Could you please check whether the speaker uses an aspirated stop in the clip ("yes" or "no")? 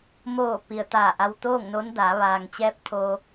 yes